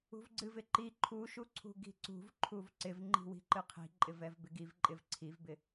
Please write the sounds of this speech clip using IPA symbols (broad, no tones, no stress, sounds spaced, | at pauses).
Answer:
ṳ v ɡ͡ǀ ɨ v ɪ ǃ i ǃʰ u ʃ u ǀʰ ṳ ɡ i̤ ǀ ṳ v ǃʰ u v ǀ ɪ v ŋ͡ǃ i̤ w i̤ ǃ ɨ qʰ i̤ ǃʼ ɪ v ɛ v b ɪ ɡ i v ǃʼ ɪ v ǀʰ i v b ɪ